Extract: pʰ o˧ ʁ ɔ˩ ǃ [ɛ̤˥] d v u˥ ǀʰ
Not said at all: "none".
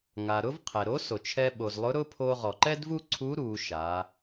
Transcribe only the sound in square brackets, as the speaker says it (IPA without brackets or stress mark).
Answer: ɛ˥